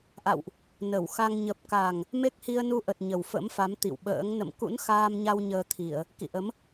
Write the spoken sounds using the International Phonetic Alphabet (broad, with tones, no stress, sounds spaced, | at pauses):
ʔ a̰˧˨ w ʔ | n ə˧˩ w x a˧ ŋ ɲ ə˨˩ p̚ k a˨˩ ŋ | m e˦˥ k̚ h i˧ ə̯ n u˧ ʔ ə˨˩ t̚ ɲ ə˨˩ w f ə̰˧˥ m f a˨˦ m t̪ ḭ˧˨ w ɓ ə̰ː˧˥ ŋ n ə̰˧˨ m k ṵ˧˥ n x aː˧ m ɲ a˧ w ɲ əː˧ t̪ʰ i˧˩˨ ə̯ | k ḭ˧˨ ʔ ə˨˦ m